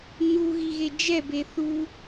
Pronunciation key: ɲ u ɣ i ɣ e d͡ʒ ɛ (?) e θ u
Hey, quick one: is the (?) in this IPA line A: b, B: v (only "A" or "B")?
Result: A